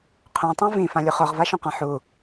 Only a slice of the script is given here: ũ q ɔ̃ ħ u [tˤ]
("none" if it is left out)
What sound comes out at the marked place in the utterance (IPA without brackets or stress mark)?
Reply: none